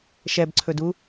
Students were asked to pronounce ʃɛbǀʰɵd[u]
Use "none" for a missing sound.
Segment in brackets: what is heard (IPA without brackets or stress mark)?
u